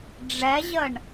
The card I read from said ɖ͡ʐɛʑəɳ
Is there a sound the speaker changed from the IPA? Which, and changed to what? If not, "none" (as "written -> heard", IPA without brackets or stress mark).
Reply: none